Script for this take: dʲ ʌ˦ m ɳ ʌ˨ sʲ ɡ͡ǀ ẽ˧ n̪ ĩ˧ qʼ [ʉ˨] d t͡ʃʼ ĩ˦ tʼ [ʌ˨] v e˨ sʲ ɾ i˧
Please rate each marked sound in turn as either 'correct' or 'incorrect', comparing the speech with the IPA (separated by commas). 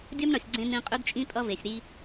incorrect, incorrect